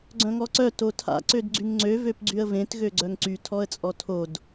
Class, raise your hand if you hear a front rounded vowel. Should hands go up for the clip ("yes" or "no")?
yes